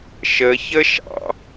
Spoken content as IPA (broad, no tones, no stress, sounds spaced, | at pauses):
ʃ ə ç ə ʃ ɑ̰